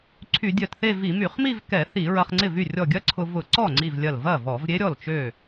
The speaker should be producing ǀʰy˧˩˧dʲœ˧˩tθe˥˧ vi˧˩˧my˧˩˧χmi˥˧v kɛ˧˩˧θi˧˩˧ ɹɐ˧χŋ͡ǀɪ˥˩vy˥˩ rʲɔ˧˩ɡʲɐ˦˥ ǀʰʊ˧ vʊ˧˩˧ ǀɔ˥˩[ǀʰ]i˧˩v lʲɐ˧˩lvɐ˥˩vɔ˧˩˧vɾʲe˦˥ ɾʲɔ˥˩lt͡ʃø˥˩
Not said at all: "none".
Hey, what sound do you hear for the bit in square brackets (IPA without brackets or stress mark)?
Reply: ŋ͡ǀ